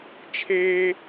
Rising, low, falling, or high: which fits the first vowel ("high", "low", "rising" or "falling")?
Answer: high